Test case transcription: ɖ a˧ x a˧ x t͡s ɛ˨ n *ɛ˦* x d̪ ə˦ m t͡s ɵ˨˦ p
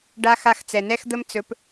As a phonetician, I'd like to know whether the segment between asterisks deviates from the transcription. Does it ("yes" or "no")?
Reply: no